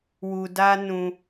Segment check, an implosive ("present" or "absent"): absent